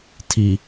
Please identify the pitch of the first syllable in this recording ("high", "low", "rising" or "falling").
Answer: low